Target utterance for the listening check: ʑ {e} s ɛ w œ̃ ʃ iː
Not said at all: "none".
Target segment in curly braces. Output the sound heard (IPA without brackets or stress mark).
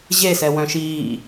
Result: e